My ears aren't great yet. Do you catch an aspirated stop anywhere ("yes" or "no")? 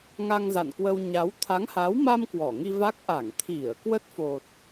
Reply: yes